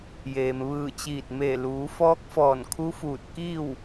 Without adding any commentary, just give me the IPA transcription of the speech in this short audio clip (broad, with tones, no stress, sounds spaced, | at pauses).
j eː˩ m ʋ ɯː˧˩ t͡ɕ iː˧˩ t̚ m e˧˩ l uː˩˧ f ɔː˧˥ k̚ f ɔː˧˩ n kʰ u˧˥ f uː˧˩ t̚ k iː˥˨ w